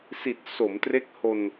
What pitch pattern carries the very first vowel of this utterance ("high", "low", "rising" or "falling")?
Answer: low